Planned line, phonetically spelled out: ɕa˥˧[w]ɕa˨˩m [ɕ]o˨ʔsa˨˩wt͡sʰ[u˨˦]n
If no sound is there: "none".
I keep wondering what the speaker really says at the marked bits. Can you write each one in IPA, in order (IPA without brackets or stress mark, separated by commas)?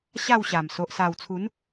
w, s, u˨˦